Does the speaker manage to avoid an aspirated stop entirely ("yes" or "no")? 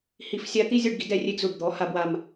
yes